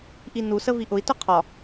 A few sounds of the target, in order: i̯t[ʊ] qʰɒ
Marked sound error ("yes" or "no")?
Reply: no